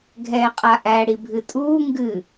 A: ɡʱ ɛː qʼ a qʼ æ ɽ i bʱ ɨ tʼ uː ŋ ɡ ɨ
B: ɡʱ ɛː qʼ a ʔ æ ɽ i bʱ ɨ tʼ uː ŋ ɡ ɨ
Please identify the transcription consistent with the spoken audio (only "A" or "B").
B